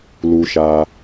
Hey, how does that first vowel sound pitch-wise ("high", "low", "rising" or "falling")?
high